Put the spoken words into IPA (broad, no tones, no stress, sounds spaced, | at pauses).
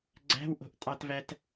ɡ͡ǀ æ̤ w ʔ o̤ ʔ tʼ ɑ t v æ t